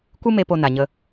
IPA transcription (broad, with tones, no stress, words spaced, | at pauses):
kʷɨ˦me˧ po˧ na˨ɲə˧